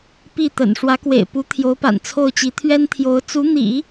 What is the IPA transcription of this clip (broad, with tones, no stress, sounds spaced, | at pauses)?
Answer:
p i˥˩ t̪ ə̰˨˩ n ʂ w ä˧˥ k w ḛ˨˩ ɪ̯ p u˧˥ t̪ʰ j o˧˥ ʊ̯ p a̰˨˩ n t͡sʰ o˥˩ ʊ̯ t͡ɕ i˧˥ t̪ʰ ɥ ɛ˥ n t̪ʰ j o˧˥ ʊ̯ t͡s u˧˥ n̪ ḭ˨˩˦